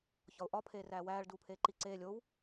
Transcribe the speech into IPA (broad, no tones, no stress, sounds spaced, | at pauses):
ç ɒ ʊ̯ ʔ ɒ pʰ eː r æː w æː ɭ d uː pʰ eː ǃ i ǀ eː lʲ o w